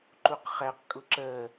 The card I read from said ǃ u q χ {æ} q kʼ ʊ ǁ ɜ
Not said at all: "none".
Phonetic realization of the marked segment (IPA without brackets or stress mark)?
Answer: æ